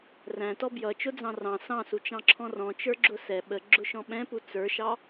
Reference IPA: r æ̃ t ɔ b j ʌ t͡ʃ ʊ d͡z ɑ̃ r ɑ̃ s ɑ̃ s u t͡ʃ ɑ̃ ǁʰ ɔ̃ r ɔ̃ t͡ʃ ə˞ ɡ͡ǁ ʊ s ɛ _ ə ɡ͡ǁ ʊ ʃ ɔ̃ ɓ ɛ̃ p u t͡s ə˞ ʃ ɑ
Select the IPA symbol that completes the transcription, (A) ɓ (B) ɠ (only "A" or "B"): A